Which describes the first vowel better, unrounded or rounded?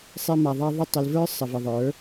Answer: unrounded